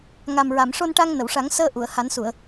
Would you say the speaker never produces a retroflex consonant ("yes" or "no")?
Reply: no